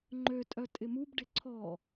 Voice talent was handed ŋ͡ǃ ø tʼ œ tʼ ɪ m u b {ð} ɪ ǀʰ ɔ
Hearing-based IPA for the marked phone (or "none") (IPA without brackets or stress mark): ɖ